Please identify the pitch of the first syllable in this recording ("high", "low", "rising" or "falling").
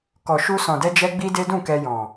low